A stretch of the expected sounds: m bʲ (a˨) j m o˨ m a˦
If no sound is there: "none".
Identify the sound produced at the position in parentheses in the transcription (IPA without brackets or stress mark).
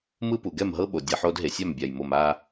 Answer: a˨